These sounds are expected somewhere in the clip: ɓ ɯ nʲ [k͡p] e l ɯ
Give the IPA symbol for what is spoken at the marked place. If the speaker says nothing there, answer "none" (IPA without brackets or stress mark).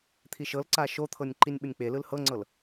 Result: k͡p